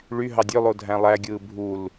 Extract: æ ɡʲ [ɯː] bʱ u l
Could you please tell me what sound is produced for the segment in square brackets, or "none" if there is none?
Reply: ɯː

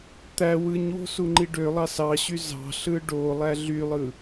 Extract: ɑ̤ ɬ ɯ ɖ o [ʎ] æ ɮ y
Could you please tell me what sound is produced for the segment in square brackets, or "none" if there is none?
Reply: lˠ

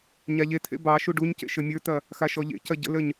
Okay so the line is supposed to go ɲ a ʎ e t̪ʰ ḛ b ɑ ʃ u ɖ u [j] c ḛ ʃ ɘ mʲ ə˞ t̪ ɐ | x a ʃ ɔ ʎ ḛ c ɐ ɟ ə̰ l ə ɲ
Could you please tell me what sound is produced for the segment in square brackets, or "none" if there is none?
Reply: ɲ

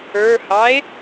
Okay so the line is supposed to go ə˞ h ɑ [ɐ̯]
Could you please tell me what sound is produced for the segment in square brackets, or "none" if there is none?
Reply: e̯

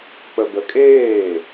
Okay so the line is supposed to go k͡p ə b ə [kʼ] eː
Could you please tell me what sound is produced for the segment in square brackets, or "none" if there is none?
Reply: kʼ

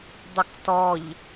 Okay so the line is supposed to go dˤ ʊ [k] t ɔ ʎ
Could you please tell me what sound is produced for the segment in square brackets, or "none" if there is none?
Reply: k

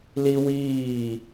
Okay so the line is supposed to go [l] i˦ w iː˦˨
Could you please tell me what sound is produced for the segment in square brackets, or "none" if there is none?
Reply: l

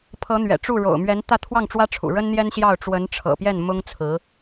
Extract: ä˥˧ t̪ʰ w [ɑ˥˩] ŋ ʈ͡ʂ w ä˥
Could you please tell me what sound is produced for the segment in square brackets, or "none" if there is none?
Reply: ɑ˥˩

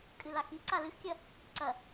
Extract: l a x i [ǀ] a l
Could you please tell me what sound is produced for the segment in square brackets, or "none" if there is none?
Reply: ǀ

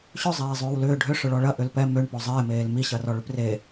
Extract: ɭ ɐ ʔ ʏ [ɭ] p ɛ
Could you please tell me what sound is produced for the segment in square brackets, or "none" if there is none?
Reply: l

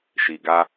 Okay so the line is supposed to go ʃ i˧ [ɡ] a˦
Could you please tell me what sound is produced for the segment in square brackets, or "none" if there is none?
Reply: ɡ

